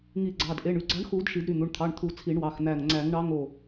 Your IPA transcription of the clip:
ŋ i˨˩˦ ɡ͡ǀ ɑ˩˧˩ d ʔ e˩˧˩ ɳ y˧˩ ɡ͡ǀ ɑ˨˥ ɳ x u˨˩˦ d ʃ i˨˩˦ d ɾ y˩˧˩ n̪ u˩˧˩ ɳ t̪ʰ ɑ˩˧˩ ɳ t̪ʰ u˨˩˦ t͡sʰ i˨˩˦ ɳ w ɑ˩˧˩ x n̪ æ˧˩ ŋ ŋ͡ǀ æ˨˩˦ ŋ ɳ ɑ˨˥ ŋ o˧˩

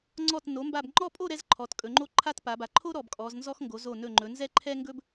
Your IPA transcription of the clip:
ŋ͡ǀ ɔ˧˩ t n o˩˧ m b a˧˩ b ŋ͡ǃ ɔ˥˧ pʼ o˥˧ ɾ ɛ˥ z ǃʰ ɔ˩˧ t kʼ ɵ˩˧ ŋ͡ǃ o˥˧ ǃʰ a˥ t p a˩˧ b a˩˧ ǃʰ o˥ ɾ ɔ˧˩ b kʼ ɔ˩˧ z n z ɔ˥ x ŋ ɡ o˩˧ z o˧˩ n ɵ˧˩ ŋ͡ǃ ɵ˩˧ n z ɛ˥˧ ǃʰ ɛ˥ ŋ ɡ ɵ˥ b

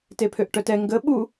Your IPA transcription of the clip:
t e pʰ ø ʔ ʈ œ t ɛ ŋ ɡ ə ɓ u

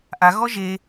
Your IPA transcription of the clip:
ʔ a ɣ ɔ ʒ e

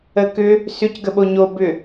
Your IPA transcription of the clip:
ə k ʏ | s ʏ c ɡ ə ɓ o ɲ o b ʏ

